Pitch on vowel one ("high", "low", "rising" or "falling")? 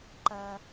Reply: high